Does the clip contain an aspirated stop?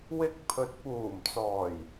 yes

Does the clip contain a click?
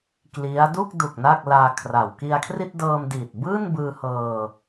no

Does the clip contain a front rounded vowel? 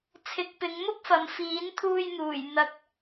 no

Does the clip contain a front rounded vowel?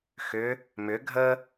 yes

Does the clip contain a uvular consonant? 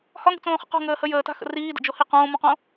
yes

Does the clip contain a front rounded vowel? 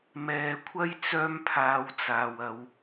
yes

